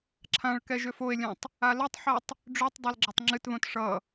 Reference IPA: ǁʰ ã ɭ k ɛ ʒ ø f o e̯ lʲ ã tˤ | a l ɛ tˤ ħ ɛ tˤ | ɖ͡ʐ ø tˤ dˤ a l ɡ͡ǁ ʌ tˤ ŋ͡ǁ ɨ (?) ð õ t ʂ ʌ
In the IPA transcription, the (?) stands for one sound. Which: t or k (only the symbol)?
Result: t